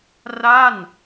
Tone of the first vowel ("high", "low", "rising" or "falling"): falling